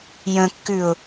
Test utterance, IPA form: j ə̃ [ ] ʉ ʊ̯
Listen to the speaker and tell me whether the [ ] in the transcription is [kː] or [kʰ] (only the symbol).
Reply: kː